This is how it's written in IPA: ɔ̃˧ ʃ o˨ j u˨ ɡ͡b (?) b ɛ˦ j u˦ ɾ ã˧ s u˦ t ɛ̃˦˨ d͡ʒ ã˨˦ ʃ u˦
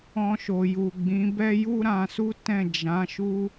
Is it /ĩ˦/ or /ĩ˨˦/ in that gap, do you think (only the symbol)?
ĩ˨˦